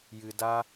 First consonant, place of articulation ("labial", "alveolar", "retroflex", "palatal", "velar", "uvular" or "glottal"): palatal